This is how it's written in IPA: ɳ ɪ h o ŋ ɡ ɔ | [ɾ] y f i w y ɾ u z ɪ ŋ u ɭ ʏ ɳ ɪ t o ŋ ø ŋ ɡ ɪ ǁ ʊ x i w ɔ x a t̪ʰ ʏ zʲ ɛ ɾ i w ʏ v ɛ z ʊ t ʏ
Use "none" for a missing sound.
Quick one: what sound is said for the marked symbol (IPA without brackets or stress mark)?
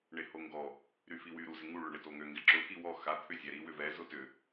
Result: ɾ